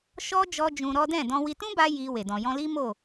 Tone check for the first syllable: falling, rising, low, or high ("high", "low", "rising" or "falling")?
high